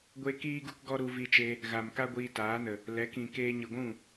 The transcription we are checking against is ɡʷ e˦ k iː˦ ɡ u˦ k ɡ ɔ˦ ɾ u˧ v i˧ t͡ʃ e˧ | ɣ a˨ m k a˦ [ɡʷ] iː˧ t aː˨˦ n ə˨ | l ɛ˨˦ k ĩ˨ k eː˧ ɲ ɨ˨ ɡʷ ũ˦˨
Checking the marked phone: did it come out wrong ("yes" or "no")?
no